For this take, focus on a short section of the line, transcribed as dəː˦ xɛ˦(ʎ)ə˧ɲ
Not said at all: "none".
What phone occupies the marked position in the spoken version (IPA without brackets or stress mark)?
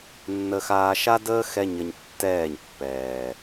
ɲ